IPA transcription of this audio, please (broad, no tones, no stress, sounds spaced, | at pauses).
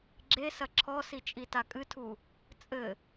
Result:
ɡ͡ǁ e s ɐ ǁʰ ɔ s i t͡ʃʼ i t a kʼ ɨ tʰ u | t͡sʼ ɘ